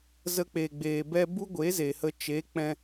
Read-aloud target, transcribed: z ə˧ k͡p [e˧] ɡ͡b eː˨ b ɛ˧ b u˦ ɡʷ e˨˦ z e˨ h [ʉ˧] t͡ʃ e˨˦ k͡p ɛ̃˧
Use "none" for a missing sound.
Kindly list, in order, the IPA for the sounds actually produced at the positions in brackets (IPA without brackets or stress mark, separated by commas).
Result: e˨, ə˧